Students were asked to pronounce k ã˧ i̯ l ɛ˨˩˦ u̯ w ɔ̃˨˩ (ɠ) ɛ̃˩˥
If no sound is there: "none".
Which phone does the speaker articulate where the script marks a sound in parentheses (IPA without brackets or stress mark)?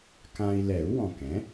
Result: k